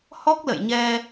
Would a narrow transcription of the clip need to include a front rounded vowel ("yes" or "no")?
no